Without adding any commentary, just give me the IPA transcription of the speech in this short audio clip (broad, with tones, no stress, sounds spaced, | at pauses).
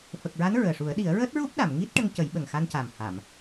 f ə˨˩ k̚ ɹ a˧˥ n ɹ əː˨˩ ʂ u˨˩˦ ə̯ ɗ i˨˩˦ ə̯ ɹ əː˦˥ t̚ ɹ u˦˥ p̚ ɗ a˨˩˨ m ŋ i˦˥ t̚ ʈ ə˧ ŋ c ə˨˩˦ j ɓ ə˨˩ ŋ x a˧ n c a˨˩ m h a˨˩˨ m